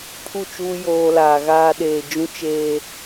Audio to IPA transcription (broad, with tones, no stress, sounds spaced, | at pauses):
pʰ u˦˨ t͡ʃ uː˦ j oː˦ l aː˨ ɣ aː˦ ɗ eː˨ d͡ʒ ũ˦ t͡ʃ eː˦